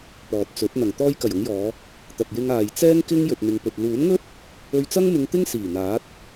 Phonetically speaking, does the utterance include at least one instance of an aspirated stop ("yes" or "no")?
no